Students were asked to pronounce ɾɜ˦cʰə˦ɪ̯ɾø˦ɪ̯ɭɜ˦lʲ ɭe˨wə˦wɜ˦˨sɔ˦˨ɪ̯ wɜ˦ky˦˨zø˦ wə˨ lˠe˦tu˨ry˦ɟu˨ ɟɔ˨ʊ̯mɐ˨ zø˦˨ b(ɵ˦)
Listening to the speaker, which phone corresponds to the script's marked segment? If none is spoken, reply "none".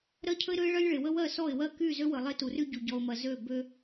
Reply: ø˦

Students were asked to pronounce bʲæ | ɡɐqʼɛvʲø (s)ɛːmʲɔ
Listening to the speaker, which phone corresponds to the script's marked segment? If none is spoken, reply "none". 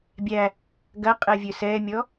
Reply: s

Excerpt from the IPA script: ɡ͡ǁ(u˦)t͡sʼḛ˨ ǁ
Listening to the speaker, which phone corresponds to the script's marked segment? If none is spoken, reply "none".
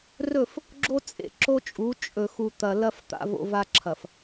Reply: o˦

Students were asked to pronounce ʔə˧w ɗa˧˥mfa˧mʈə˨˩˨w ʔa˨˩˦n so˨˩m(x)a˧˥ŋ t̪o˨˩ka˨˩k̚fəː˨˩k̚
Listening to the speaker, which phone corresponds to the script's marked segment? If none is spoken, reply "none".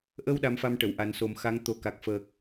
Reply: x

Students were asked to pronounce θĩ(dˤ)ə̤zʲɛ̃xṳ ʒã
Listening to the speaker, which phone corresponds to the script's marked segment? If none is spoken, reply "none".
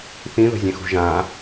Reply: ð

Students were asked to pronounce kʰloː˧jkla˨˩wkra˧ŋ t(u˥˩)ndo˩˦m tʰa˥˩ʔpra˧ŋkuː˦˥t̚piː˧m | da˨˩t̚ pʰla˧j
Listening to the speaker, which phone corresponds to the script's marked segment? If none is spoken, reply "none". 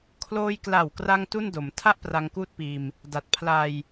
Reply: u˥˩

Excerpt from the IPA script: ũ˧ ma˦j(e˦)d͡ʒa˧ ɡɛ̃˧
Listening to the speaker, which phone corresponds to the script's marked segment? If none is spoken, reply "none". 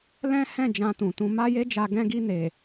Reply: e˦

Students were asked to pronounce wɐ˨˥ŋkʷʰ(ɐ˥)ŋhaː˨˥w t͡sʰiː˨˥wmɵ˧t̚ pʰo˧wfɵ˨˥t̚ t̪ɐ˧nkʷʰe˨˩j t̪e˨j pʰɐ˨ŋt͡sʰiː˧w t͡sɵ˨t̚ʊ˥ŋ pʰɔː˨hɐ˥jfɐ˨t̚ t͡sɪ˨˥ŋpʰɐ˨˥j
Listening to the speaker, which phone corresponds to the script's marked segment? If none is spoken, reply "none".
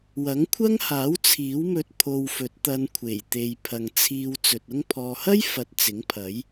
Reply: ɐ˥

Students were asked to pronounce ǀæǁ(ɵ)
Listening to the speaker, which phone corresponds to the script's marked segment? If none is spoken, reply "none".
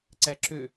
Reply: ø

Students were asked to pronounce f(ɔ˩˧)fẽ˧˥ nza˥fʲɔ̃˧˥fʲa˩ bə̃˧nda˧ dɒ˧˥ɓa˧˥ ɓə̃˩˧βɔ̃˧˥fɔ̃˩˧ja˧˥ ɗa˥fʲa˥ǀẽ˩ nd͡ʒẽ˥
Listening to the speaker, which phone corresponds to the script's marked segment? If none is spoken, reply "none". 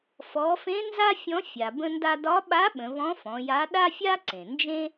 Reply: ɔ˩˧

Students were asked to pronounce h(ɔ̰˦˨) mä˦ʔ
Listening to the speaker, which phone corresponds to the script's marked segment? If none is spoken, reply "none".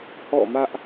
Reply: ɔ̰˦˨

